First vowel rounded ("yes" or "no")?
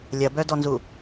no